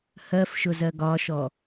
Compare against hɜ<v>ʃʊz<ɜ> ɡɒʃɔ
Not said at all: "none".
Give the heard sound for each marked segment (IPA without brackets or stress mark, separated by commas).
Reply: f, ɜ